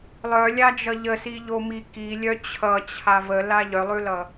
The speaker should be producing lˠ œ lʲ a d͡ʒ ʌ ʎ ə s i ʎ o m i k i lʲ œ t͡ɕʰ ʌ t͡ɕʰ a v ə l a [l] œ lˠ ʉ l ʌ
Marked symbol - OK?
no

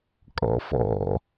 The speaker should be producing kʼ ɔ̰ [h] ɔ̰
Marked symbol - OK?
no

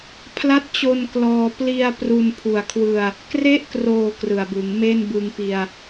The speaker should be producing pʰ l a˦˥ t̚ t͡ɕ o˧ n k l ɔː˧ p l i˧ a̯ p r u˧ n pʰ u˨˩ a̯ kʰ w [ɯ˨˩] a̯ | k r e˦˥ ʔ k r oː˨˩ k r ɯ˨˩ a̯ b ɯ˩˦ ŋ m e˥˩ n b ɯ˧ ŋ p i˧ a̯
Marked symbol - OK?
no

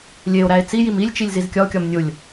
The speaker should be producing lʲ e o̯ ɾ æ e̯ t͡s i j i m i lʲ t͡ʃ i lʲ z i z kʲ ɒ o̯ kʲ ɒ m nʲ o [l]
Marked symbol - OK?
no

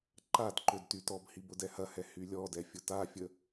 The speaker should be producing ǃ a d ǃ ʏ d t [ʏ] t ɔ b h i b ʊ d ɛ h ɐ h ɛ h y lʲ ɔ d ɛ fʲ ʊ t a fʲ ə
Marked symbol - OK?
no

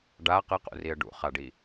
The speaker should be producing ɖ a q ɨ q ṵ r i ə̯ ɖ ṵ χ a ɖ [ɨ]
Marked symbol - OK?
no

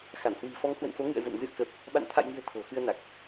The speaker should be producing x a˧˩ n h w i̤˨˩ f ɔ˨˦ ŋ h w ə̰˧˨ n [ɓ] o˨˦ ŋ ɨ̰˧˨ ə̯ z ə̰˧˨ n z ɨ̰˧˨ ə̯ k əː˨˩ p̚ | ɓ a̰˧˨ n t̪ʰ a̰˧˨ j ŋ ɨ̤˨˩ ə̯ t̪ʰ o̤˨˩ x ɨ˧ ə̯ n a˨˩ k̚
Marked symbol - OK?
no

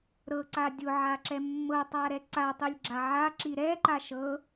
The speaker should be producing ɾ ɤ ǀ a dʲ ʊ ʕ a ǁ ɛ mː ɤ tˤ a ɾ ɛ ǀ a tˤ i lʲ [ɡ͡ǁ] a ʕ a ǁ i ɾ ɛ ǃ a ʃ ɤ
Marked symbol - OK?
yes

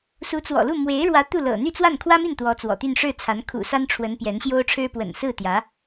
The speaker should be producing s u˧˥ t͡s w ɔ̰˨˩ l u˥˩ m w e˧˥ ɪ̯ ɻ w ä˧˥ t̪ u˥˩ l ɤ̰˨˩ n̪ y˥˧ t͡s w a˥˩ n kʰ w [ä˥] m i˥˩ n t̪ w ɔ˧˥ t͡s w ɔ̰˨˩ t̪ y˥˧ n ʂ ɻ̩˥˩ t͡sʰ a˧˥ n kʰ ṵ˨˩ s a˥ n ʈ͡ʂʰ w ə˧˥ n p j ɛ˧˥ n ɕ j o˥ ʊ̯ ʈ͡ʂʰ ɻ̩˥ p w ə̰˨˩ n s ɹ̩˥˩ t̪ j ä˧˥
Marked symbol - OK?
yes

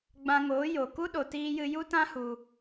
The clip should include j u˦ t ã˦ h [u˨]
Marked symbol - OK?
no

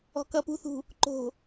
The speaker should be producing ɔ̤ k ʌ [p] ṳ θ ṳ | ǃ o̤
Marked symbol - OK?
yes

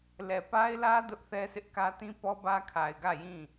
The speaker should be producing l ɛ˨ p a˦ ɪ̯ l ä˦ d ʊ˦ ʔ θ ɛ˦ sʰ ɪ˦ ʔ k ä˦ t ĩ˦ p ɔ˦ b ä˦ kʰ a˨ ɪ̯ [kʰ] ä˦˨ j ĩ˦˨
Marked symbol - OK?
no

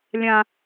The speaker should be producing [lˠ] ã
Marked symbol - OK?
no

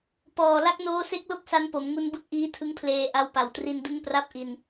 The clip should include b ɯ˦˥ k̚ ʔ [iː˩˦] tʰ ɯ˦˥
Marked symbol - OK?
no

